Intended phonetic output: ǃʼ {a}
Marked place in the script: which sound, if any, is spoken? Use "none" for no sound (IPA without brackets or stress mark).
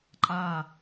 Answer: a